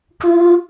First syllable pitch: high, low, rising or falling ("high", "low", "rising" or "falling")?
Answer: high